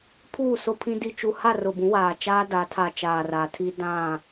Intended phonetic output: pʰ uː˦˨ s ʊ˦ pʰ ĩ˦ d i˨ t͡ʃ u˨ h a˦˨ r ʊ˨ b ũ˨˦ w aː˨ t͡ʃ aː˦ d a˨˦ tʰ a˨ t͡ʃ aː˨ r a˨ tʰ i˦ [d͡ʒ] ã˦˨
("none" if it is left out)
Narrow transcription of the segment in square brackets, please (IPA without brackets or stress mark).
d